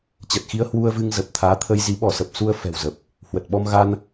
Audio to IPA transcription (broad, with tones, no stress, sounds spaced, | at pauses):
t͡ɕ ə˨˩ t̚ x i˧ ə̯ h w u˧ ə̯ v ɨ˧ ŋ z ə˨˩ p̚ t̪ʰ aː˨˦ t̪ʰ ə˧ j z i˨˦ ɓ ɔ˧˩ s ə˨˩ p̚ s u˧ ə̯ f ɛ̤˨˩ w z ə˨˩ p̚ | h w ə˨˩ t̚ ɓ ɔ˧ m ɣ a˧ n